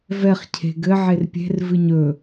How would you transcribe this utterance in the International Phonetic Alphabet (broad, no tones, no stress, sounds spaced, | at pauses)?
v ɛ χ cʰ e̤ ɡ ɘ ʕ e r pʲ e̤ r v ɨ ɲ ɵ